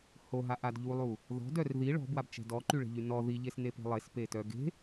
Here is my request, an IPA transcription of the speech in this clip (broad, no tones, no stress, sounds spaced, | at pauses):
h o ɦ a ʔ a d ʎ u lˠ u | ð ɔ̤ d œ r ð i ɭ ɔ̤ b w a b t͡ʃ ɛ̤ d ɔ ǃ y ɭ e̤ ʎ y n ɔ ð i ʎ e s n e p e̤ lˠ e s p e t œ ɡ e̤